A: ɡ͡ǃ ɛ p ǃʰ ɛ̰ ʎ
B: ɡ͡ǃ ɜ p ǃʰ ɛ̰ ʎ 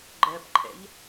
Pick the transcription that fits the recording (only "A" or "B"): B